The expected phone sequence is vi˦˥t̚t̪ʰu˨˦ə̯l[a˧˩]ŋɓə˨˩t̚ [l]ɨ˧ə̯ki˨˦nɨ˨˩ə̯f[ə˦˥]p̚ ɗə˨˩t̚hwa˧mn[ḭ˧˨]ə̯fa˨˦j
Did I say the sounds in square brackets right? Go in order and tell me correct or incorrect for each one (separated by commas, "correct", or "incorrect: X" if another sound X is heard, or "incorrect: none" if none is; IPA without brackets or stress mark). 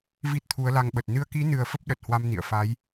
incorrect: a˧, incorrect: n, correct, correct